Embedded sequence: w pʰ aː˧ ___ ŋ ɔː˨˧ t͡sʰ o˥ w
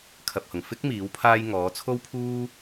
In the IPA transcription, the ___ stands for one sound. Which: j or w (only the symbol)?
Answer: j